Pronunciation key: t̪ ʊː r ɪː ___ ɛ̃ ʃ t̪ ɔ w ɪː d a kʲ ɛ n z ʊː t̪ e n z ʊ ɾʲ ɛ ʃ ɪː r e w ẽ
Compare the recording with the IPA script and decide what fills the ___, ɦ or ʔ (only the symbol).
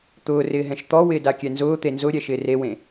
ɦ